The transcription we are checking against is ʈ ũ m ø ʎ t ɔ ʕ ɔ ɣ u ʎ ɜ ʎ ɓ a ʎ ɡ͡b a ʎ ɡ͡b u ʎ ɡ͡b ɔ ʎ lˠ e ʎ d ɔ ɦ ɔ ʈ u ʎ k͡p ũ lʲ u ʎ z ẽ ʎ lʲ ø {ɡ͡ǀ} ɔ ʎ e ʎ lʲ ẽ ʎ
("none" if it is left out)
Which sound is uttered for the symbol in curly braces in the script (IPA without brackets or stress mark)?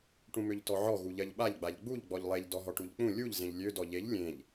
d